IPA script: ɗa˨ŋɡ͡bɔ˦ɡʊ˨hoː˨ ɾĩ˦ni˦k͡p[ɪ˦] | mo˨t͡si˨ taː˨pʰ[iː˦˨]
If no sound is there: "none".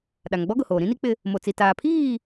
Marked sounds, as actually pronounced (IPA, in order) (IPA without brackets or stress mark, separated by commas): ɪ˦, iː˦˨